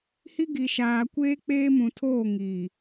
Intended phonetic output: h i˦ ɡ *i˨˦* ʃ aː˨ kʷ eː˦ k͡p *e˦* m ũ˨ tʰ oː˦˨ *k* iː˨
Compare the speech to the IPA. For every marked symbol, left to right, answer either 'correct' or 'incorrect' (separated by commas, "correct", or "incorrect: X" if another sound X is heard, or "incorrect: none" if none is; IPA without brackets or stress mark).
incorrect: i˨, incorrect: eː˦, incorrect: ŋ